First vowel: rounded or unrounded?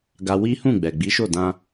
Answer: unrounded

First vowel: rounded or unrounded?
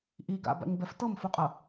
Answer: unrounded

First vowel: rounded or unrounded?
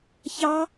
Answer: unrounded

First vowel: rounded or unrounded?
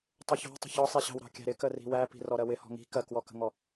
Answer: rounded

